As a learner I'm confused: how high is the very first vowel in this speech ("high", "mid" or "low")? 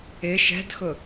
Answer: high